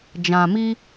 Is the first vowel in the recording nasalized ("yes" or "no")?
yes